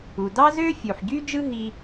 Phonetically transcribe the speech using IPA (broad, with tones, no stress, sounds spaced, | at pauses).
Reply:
u˩ d ɑ˥ z ø˥ fʲ u˩ ħ ɟ y˥ d͡ʒ ɯ˥ ɦ i˥